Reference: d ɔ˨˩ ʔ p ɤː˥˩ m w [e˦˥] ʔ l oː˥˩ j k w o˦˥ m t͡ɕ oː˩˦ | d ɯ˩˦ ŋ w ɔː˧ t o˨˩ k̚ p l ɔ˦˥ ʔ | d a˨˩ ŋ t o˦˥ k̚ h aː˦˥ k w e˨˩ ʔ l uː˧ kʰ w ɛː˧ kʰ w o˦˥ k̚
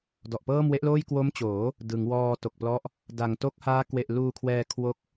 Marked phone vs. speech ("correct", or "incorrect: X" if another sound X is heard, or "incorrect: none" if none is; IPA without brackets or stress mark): correct